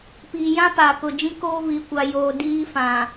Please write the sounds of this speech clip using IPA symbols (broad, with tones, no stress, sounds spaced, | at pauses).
p iː˨ j ã˦ p aː˨ k ʊ˨ d͡ʒ ĩ˦ k oː˦ v i˨ kʷ a˨ j oː˨ d iː˦ f ã˨